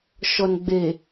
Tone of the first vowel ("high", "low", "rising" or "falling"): low